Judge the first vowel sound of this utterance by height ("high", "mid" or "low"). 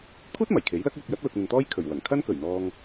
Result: high